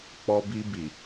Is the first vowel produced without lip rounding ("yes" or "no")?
no